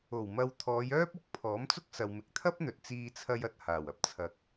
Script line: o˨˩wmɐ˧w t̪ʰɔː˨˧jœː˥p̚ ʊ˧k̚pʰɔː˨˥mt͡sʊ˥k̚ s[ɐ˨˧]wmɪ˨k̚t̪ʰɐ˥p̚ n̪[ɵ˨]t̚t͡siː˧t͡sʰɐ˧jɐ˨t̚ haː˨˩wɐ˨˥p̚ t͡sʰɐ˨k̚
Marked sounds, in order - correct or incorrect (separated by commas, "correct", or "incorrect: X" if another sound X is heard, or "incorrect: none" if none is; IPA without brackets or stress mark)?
incorrect: ɐ˨, correct